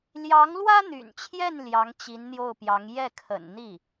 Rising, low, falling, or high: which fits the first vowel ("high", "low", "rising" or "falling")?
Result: rising